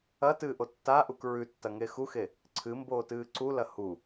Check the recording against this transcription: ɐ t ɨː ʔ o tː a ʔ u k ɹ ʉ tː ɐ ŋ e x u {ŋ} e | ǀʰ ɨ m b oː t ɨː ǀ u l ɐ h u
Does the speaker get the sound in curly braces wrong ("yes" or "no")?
yes